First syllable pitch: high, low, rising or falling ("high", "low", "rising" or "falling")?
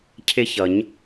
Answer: high